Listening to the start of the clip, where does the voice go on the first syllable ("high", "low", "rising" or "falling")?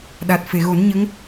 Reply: low